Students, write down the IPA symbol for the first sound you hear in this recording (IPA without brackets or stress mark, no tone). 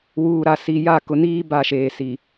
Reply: w